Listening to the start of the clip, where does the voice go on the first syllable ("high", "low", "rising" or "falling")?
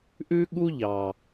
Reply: high